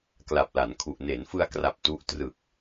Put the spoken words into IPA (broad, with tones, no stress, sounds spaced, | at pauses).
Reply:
k l a˨˩ p̚ l a˩˦ n kʰ u˨˩ ʔ n e˩˦ n f ɯ˧ a̯ k r a˨˩ p̚ t u˦˥ ʔ t r ɯ˨˩ k̚